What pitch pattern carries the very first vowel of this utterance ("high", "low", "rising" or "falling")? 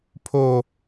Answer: high